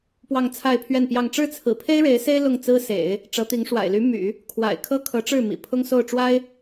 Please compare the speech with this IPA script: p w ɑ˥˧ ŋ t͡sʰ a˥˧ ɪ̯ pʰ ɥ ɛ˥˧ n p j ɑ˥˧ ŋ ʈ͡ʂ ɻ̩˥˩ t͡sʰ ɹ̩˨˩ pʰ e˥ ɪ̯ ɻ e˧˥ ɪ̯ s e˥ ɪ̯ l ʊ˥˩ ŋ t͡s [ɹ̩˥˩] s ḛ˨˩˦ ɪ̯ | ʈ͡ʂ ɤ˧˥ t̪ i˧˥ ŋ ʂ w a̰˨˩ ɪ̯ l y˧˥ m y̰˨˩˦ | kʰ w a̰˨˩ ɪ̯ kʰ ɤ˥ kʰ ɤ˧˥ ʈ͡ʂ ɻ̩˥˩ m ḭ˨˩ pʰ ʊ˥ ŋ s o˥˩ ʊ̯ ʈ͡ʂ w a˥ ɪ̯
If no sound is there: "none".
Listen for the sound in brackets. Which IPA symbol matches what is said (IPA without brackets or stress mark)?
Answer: ɹ̩˥